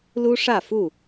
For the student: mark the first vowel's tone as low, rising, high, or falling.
high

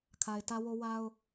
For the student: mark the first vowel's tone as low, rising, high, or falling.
low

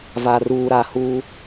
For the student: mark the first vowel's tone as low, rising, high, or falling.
low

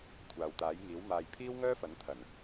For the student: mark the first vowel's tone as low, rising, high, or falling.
low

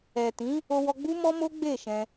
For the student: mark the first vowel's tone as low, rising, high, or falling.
low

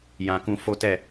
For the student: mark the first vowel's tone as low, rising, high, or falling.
low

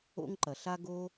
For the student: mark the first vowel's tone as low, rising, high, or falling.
high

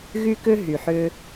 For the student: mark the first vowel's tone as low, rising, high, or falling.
high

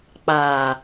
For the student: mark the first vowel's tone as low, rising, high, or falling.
low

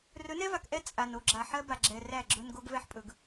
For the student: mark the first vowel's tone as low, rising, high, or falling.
rising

